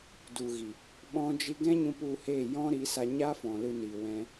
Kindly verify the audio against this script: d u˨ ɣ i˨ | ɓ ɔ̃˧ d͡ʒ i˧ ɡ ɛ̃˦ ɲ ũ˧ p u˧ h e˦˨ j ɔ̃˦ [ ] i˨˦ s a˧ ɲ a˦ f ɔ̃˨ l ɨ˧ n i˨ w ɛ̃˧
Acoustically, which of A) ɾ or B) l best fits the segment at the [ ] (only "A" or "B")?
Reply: A